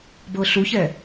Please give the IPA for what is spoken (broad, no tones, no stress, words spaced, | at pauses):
bɤɬuçɛ